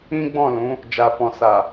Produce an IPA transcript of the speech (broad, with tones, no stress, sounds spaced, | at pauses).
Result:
ĩ˦ ɡ͡b ɔ̃˦˨ l ũ˨˦ | d͡ʒ a˨ f ɔ̃˨ s a˨